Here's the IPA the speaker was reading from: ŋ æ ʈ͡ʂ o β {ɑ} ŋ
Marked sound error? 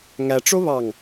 no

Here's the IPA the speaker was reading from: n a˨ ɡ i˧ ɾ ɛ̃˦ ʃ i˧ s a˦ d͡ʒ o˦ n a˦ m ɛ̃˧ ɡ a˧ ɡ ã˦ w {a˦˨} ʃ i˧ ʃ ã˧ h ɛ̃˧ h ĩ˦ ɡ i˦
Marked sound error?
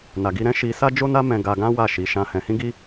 no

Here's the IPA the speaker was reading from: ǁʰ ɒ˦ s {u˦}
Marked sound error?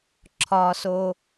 yes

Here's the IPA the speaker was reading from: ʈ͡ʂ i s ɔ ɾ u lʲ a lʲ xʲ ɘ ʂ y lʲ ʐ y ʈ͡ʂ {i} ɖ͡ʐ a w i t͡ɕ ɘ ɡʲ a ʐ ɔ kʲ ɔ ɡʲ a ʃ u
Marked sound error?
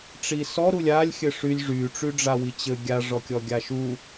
yes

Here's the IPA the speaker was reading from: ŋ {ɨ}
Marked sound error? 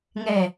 yes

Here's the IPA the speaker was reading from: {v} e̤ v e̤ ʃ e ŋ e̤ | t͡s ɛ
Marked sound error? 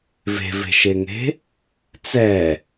no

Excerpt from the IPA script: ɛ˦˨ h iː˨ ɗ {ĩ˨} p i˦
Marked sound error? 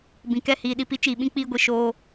yes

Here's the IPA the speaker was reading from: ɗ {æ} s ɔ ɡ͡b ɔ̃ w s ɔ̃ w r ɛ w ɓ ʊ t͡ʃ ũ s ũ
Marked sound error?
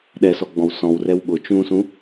yes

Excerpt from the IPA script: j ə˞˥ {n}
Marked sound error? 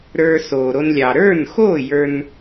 no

